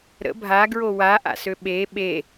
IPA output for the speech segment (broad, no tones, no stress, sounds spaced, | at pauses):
ɾ ə̰ bʱ a ɡ ɹ o w a ʔ a̰ s ø ɓ e ɓ e